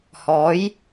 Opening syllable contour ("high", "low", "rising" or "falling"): rising